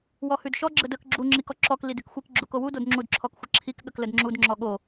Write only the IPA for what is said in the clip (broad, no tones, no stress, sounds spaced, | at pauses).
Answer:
w ɔ h ʉ d ʃ ɔ ɡ͡ǁ ə d ə k ɡ͡ǁ u ŋ͡ǁ i k ɔ ǁ ɔ k l i d ʉ k xʷ i k ɡ͡ǁ u k o w u d o d ŋ͡ǁ u d ǁʰ ɔ k xʷ ə ǁʰ i k ɠ ə k l ə d ŋ͡ǁ u d ŋ͡ǁ ɔ ɠ o